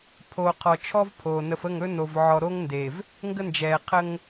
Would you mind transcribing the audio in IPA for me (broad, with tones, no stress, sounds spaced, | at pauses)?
pʰ oː˨ qʰ ɔ˨ t͡ʃʰ ɔ˦ v pʰ oː˨ n ə˨ f ə˦˨ ŋ ɵ˦ n o˨ v ʕ ɔ˨ ɾ o˦ ŋ n d e˨ v | ŋ ɡ ə˦ n d͡ʒ ɛː˨ qʰ ə˦ ŋ